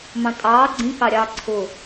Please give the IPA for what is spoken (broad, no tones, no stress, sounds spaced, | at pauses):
m ɑ̃ tʼ ɑː ɡ͡ǀ ĩ k ɑ ɾʲ ɑː ǀʰ ʊ